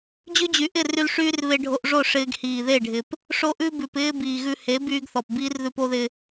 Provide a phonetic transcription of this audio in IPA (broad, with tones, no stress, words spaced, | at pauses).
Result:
d͡ʑʉ˦d͡ʑy˨ ʔɪ˦˨ry˧l ʂyː˦rβe˧ɖʱo˧ʔʐo˦˨ ʂɪː˦ɡ hiː˨ðe˦˨ɖʱɪ˨p | ʂo˦ ʔʉ˦ bʉ˨pɪː˦ biː˨ɣʉ˧he˨˦ byː˦ɡθɔ˨p biː˦rðʉ˧po˦ðɪ˧